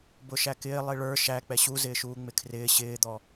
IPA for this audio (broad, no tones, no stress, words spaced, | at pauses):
bʊʃækɪː lˠiɭə˞ ʃæ k͡pɛɕuzɪːʃuː ŋ͡mɪkʰrɪː ɕɪːd̪ɔ